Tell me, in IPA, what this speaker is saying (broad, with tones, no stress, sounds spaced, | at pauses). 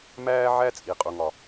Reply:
m æː˦ ʕ æ˦ t͡sʼ i˨ qʼ u˨ ŋ ɒ˨